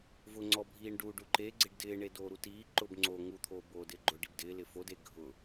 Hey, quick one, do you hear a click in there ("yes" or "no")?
yes